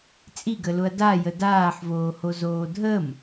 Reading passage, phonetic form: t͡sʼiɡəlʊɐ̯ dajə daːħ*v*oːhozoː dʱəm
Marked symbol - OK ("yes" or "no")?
yes